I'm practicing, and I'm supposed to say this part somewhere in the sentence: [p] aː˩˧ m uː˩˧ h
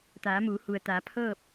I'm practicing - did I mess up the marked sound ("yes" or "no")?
yes